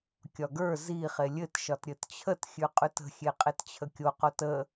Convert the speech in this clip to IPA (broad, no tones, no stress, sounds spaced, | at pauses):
kʲ ɒ ɡ ə˞ z i χ e lʲ ɘ t ʃ ɒ t ɾʲ ɘ t t͡ɕʰ ə t xʲ ʉ qʼ ʉ t ə̤ xʲ e qʼ e t t͡ɕʰ ə kʲ o q o t ə